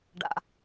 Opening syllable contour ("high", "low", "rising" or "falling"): low